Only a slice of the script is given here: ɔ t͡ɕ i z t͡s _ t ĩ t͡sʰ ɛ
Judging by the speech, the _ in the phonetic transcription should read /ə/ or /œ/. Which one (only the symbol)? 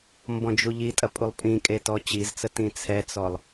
ə